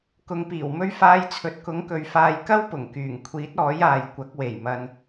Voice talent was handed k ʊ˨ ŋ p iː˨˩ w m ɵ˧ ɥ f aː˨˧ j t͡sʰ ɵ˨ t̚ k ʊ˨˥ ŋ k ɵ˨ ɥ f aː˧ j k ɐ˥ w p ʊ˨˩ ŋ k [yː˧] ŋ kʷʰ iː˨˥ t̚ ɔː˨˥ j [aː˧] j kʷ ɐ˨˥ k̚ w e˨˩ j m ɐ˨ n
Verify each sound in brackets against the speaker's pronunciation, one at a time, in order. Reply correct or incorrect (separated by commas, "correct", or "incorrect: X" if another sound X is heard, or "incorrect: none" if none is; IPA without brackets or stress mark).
incorrect: yː˨˩, incorrect: aː˨